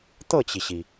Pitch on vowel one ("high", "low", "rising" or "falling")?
falling